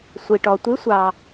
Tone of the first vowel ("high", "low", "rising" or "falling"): low